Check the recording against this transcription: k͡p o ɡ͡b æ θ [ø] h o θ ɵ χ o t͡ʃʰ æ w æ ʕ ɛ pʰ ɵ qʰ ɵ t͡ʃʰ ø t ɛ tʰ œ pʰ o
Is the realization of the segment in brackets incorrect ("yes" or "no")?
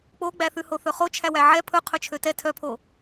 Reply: yes